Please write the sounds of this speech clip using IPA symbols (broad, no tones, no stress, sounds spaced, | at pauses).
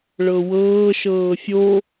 ɭ ɤ w ɤː ʃ ɤː fʲ o